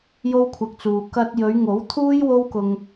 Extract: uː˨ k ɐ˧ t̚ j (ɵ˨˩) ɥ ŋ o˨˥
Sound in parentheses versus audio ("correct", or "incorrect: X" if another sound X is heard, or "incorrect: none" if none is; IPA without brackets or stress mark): incorrect: ɵ˨˧